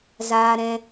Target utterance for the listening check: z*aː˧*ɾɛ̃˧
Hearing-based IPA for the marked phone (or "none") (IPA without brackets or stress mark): aː˧